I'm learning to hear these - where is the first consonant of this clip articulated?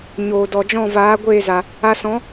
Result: palate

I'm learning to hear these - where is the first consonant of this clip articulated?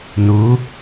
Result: tongue tip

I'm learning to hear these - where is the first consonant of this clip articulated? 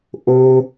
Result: throat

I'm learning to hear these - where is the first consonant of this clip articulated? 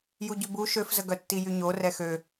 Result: palate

